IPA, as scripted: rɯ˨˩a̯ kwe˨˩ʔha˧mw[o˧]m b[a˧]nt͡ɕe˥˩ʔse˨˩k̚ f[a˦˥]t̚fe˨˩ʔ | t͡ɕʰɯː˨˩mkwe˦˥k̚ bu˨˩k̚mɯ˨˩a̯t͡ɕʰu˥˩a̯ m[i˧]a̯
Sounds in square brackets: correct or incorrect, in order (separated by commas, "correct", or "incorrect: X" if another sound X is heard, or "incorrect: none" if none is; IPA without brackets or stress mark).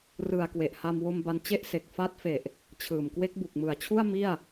correct, correct, correct, incorrect: i˥˩